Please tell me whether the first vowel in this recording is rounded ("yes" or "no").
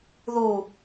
yes